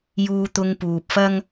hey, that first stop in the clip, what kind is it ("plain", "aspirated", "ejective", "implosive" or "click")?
plain